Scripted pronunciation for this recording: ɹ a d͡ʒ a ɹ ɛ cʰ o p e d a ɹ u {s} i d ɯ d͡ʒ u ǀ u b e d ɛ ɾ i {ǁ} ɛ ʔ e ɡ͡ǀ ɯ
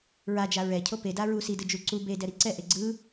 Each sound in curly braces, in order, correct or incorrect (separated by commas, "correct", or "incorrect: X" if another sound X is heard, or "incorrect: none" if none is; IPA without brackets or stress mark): correct, incorrect: ǀ